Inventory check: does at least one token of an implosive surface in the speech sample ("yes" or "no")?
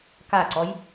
no